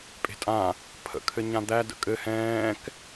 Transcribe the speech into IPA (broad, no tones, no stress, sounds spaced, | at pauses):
pʼ e̤ tʼ ã | pʰ ə̰ kʰ ɘ ɲ ã d̪ æ d ə̰ kʼ ɘ h ɛ̃ː k